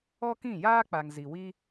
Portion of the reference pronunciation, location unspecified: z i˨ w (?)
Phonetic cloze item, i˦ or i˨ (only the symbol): i˦